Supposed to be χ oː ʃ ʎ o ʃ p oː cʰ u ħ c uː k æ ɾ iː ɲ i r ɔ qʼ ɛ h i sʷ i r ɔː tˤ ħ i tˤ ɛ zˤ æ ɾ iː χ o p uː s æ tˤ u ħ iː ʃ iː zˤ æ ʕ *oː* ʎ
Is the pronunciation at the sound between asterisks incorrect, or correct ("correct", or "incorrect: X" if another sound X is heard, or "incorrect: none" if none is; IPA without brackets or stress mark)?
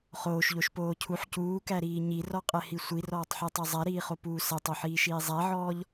incorrect: ɔː